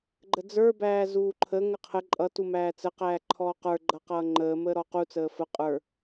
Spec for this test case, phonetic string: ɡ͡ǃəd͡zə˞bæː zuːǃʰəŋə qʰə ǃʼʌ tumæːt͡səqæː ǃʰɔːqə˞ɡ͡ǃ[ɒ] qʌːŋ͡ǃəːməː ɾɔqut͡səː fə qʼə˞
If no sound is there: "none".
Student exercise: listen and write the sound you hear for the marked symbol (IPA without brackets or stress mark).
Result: ʌ